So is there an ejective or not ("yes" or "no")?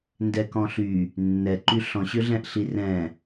no